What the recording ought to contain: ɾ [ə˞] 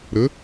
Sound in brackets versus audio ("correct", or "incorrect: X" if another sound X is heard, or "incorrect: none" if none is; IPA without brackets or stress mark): incorrect: ə